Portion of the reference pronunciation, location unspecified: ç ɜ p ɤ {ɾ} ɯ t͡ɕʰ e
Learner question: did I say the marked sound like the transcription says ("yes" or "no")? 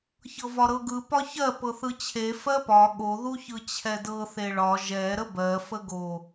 no